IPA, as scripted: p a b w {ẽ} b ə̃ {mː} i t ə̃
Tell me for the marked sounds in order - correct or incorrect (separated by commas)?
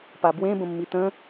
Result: correct, correct